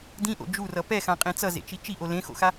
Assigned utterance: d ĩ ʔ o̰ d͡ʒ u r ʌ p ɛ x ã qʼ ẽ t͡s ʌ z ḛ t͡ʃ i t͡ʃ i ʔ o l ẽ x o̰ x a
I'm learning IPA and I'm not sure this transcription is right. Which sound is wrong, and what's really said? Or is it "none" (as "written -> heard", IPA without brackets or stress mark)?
none